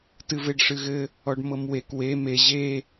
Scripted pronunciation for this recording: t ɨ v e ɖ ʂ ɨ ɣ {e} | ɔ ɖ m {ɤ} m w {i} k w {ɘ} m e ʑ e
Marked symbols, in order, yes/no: no, yes, no, no

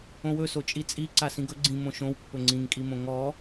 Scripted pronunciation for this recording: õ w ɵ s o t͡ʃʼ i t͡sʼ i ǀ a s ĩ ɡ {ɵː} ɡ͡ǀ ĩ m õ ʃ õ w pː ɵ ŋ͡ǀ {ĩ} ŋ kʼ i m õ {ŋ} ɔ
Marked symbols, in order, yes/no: no, yes, yes

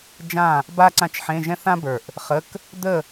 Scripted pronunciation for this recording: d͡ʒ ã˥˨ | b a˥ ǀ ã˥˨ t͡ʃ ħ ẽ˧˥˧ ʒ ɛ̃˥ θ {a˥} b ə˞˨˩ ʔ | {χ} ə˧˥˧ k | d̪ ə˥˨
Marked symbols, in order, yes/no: no, yes

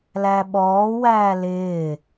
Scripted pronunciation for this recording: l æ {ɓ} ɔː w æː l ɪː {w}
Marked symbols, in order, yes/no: yes, no

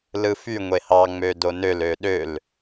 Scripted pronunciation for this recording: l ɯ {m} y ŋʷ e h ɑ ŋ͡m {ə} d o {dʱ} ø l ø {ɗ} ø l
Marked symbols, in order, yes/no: no, no, no, yes

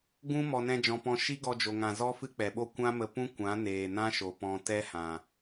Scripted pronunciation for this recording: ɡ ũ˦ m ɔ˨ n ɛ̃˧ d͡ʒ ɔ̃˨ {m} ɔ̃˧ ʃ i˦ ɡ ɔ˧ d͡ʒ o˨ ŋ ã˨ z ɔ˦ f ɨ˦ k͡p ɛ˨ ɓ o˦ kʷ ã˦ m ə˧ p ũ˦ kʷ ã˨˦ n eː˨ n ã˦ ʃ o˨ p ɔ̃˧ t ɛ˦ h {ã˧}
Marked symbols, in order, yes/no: no, no

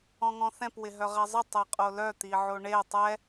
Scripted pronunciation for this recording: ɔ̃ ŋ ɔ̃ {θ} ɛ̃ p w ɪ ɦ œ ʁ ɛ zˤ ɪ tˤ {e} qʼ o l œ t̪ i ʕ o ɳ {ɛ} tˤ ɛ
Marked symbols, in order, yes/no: yes, yes, no

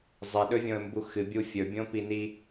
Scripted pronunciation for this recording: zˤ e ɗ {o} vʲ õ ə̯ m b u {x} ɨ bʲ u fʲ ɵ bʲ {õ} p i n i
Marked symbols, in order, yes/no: no, yes, yes

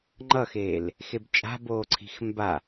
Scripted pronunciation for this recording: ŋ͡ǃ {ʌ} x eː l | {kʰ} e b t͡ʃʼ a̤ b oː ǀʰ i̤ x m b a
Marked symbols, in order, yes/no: yes, no

